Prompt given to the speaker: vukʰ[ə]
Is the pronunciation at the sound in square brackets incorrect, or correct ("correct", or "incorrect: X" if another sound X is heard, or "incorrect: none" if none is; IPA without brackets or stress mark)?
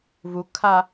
incorrect: a